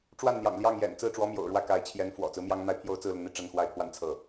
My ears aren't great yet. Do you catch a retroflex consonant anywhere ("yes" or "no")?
yes